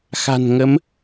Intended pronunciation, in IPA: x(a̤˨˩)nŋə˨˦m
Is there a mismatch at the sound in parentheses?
no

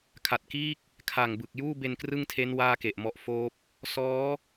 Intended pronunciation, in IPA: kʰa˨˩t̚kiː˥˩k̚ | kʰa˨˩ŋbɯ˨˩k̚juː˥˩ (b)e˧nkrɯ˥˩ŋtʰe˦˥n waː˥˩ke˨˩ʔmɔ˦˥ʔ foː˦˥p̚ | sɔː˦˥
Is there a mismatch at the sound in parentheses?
no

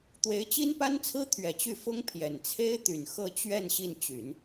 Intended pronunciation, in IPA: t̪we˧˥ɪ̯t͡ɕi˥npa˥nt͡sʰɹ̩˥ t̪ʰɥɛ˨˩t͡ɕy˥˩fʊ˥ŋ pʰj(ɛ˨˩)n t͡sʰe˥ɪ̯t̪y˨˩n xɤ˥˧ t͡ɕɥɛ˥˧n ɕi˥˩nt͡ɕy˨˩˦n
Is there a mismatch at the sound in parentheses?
no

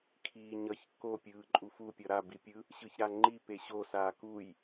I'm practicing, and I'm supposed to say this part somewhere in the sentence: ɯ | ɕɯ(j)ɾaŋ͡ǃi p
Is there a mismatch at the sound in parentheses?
yes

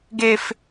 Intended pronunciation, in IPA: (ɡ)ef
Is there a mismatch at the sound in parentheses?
no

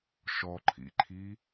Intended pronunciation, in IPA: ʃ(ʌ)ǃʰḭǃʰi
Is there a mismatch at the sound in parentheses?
yes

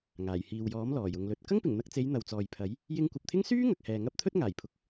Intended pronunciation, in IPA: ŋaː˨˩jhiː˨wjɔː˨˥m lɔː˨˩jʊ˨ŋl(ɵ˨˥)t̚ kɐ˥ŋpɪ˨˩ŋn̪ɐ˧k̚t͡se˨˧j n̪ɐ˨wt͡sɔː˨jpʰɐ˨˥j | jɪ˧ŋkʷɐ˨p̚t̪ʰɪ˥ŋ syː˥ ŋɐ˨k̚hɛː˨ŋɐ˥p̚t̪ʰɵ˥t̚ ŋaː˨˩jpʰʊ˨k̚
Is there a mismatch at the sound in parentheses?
no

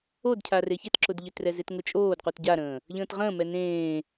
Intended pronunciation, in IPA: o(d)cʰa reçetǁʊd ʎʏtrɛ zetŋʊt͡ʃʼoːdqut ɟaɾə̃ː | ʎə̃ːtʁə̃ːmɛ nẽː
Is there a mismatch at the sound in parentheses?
no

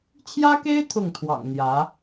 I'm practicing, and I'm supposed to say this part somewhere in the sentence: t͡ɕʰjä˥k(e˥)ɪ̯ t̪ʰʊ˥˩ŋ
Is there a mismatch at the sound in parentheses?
no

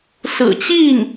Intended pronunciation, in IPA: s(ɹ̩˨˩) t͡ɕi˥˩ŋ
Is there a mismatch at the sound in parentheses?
no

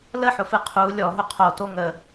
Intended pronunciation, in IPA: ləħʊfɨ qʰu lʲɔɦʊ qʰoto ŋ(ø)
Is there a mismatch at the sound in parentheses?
yes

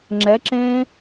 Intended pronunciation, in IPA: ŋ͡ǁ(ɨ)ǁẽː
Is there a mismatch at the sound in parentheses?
yes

